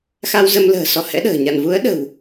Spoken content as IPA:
x a˧ w z ə˧ m l ə̤ː˨˩ s ɔ˨˦ h ɛ̰˧˥ ɗ ə̤ː˨˩ ɲ a̰˧˨ n v u˨˦ ə̯ ɗ ə̤˨˩ w

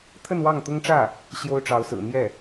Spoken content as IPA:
t̪ʰ ə˥˧ n w ɑ˥˩ ŋ t̪ ʊ˥ ŋ ʈ͡ʂ ä˥˩ | ɕ j o˥ ʊ̯ ʈ͡ʂ ɑ˧˥ ʊ̯ s ɹ̩˨˩ n̪ j ɛ˥˩

